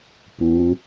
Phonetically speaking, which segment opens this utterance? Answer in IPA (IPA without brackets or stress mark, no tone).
p